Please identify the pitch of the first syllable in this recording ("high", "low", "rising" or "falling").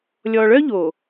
low